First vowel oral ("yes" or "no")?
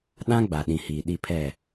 no